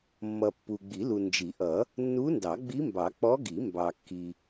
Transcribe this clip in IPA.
mː ʌ˨ pː u˨ ɡ͡b i˨˩˦ l u˨ n d͡ʒ i˨˩˦ ʔ ʌ˨˩˦ | nː u˧˥ n d ɑ˨˩˦ ɡ͡b i˧˥ m b ɑ˨˩˦ k͡p ɔ˧˥ ɡ i˨˩˦ m b ɑ˨ kː i˨

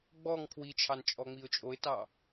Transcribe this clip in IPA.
ɡ͡b ɔ ŋ pʰ w i t͡ʃʰ ɑ n t͡ʃʼ ɔ ŋ͡m i ʊ̯ t͡ʃʼ o ɪ̯ t ɑ

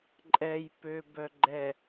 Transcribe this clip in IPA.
ǃʼ ɛ j p ø b œ ɡ͡ǃ ɛ

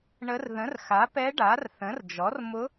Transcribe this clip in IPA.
ɳ ə˧˥ r ð ə̃˩˥ r x a˩˥ p ɛ˧˥ ɖ a˩˥ r θ ə̃˩˥ r d͡ʒ ɔ˩˥ r m ʊ˧˥

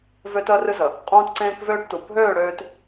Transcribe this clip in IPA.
v ø˦ t əː˦ r ɨ˦ z ə˨ | qʼ ũː˦ t ǀ ẽː˦ k v øː˦ ʈ t u˨ bʱ øː˦˨ ɽ øː˨ t

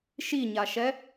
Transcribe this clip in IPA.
ʃ i ɲ a ʃ ɛ

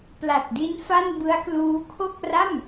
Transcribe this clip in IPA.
p l a˨˩ t̚ d i˦˥ n f a˥˩ n b ɯ˦˥ a̯ k l uː˦˥ kʰ o˥˩ k̚ r a˥˩ m

